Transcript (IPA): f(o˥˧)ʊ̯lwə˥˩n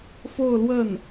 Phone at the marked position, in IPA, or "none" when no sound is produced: o˥˧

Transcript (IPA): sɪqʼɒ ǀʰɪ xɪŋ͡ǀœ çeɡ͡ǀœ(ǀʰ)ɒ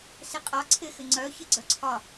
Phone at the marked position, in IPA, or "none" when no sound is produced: ǀʰ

